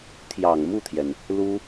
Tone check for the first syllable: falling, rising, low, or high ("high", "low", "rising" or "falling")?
low